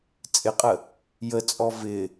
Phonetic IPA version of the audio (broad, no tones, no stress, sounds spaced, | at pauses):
t͡sʼ ɪ qʼ ə | j ə t͡sʼ ɔ v ɪ